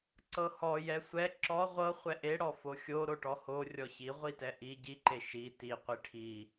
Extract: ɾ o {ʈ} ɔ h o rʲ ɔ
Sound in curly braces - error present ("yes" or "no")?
no